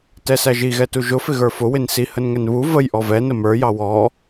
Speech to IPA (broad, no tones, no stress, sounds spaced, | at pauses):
t ɛ s æ ʒ i ɣ ɛ t u ʒ ʊ f ɪ ɣ ə˞ f ʊ w ɪ n s i h ə n ŋ ɛ n β u v ə j ʔ ɔ v ɛ n ə m ə˞ j ɑ w ɔ